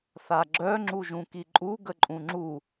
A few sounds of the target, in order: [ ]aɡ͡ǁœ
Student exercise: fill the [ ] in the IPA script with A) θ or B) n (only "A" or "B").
A